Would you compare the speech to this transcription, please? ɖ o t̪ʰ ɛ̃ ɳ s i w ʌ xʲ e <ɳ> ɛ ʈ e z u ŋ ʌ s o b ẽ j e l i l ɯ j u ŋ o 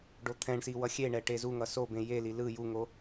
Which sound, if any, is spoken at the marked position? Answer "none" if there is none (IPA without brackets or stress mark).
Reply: ɳ